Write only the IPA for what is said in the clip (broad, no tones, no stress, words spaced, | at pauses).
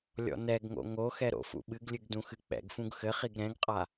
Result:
lʲɔ̰nɛɡŋo̰ ŋoxɛ ɾo̰fṵɓɨɡlʲɨɡ dũxɨk͡pɛ̰ɡfũɡ xɘχiɡ ɾɛ̃ɡqʼa